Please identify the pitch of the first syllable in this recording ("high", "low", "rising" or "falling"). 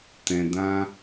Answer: low